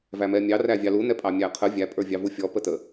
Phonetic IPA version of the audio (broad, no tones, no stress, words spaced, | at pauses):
væmɛmʲɑ rævʲɑlu nɛpʼɑmʲæqʰə vʲæ pʼə˞vʲɑvufʲɔ pətə